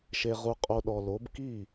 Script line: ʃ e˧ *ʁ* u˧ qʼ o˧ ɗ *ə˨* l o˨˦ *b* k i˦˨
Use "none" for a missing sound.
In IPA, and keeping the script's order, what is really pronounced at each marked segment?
ʁ, ɔ˨, b

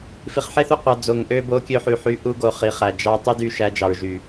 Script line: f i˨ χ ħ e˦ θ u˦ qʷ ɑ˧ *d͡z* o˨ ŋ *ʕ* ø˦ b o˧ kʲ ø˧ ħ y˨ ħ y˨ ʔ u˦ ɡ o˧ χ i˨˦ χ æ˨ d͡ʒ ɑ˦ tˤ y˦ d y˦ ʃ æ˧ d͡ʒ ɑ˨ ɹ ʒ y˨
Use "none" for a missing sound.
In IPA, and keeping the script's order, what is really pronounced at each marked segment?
d͡z, ʔ

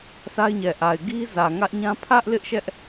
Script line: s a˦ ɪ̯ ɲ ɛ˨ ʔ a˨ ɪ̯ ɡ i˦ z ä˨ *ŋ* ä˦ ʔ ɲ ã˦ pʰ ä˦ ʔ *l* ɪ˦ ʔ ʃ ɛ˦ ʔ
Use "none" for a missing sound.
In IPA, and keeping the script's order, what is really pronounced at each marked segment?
ŋ, l

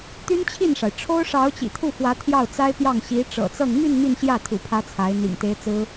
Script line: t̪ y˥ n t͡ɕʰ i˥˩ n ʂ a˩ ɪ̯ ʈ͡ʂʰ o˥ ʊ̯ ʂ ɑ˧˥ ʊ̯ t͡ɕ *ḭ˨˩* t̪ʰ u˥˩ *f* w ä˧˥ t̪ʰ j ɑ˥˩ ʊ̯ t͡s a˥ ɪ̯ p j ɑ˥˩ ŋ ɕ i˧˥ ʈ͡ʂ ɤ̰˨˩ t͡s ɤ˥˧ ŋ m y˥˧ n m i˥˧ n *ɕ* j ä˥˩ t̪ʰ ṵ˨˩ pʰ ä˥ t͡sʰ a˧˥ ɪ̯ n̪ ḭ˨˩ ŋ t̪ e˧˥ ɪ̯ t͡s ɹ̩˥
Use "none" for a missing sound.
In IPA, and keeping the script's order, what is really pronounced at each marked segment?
ḭ˨˩, f, ɕ

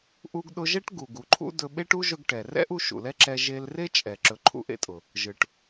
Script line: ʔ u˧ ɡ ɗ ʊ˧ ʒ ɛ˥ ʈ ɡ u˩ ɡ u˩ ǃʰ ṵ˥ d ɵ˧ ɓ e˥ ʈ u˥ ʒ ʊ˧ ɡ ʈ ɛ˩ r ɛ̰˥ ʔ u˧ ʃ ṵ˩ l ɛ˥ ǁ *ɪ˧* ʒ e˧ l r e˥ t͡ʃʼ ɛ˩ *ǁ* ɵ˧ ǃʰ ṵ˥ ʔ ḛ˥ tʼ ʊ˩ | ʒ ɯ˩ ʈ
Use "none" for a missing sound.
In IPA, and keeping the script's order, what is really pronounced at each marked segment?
ɛ˧, ǁ

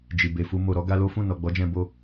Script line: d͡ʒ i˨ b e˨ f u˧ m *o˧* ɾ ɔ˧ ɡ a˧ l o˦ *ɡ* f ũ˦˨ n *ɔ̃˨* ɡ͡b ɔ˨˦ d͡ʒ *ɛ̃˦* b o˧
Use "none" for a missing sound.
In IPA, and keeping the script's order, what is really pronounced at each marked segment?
o˨, none, ɔ˨, ɛ̃˧

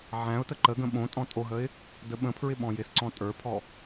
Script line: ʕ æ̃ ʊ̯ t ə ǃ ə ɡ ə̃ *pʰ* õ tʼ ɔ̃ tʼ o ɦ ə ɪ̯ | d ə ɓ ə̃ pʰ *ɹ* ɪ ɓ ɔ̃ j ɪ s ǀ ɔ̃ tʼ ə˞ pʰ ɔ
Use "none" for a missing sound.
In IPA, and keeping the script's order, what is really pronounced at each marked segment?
ɓ, ɹ

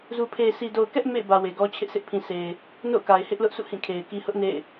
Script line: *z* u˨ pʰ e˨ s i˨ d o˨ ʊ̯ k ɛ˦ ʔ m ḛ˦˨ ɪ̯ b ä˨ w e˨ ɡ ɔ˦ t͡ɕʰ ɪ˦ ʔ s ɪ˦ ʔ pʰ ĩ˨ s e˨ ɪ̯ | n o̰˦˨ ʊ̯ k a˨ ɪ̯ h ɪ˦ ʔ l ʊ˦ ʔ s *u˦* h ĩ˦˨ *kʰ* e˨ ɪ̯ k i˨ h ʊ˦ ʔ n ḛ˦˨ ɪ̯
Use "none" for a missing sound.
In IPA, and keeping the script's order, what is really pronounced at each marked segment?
z, ṵ˦˨, kʰ

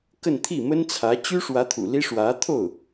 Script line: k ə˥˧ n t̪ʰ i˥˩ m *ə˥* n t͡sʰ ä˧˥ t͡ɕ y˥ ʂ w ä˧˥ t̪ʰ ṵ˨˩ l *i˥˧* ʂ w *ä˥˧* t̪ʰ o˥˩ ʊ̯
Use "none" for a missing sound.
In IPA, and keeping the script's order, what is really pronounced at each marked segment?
ə˥, i˥, ä˧˥

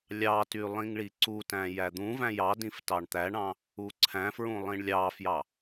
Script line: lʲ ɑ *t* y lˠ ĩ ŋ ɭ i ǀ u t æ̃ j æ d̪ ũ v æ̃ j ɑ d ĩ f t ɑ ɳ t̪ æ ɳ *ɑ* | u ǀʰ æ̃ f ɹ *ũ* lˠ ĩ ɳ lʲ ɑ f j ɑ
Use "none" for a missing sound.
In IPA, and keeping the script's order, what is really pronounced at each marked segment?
t, ɑ̃, ũ

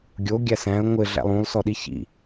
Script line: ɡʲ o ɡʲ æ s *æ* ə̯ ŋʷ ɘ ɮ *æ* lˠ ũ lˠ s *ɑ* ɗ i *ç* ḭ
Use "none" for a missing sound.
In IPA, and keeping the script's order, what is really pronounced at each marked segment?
æ̃, æ̰, ɔ, ç

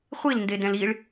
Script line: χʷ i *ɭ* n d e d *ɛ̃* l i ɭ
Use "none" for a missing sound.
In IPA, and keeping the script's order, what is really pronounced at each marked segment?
l, ɛ̃

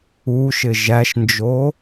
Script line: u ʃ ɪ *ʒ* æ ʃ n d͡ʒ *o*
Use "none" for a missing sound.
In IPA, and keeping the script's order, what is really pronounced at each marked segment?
ʒ, o

